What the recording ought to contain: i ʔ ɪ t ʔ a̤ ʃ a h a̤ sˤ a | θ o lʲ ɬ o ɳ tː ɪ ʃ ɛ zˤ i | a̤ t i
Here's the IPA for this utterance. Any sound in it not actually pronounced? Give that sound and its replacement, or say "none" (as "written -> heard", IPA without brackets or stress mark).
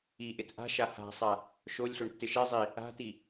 θ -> ʃ